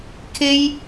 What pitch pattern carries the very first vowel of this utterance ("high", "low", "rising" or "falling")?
high